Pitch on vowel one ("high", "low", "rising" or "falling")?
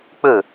falling